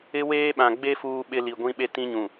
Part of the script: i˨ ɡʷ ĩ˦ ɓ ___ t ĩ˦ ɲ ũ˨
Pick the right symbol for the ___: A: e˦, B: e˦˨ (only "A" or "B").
A